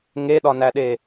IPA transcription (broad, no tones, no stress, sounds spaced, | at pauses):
ŋ e ɗ ɒ n æ ɗ e